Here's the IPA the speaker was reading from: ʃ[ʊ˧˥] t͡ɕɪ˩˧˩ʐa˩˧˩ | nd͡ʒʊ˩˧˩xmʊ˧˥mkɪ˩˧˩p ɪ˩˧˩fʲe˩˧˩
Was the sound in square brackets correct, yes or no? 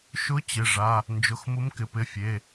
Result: yes